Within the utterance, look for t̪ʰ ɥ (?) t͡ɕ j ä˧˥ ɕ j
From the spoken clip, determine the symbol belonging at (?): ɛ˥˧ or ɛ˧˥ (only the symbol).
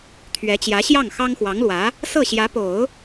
ɛ˧˥